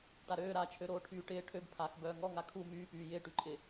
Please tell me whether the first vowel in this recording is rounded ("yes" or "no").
no